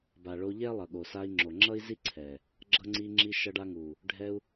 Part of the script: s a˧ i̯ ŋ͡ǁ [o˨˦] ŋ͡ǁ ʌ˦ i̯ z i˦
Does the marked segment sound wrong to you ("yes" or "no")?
yes